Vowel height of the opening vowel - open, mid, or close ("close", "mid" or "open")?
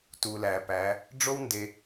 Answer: close